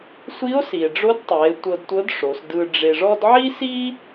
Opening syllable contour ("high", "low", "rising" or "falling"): rising